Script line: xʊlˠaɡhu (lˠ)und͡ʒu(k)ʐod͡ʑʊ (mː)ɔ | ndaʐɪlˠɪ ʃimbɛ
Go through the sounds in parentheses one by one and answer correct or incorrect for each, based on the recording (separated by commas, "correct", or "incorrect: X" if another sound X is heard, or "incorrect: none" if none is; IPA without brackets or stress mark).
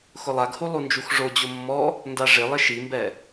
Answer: correct, incorrect: x, correct